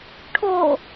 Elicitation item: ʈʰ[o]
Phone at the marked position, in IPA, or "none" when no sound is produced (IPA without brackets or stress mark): o